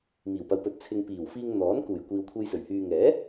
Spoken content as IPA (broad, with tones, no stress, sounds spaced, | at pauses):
m iː˨˩ w p ɐ˨˧ w p ɵ˨ t̚ t͡sʰ ɪ˨ ŋ p iː˨˩ w f iː˧ ŋ n̪ ɔː˨˥ n k uː˨˩ j kʷ iː˨ w kʷʰ e˧ j s ɵ˨˩ ɥ h yː˨ ŋ ɛː˨˥